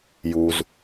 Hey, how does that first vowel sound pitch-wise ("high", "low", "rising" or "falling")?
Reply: low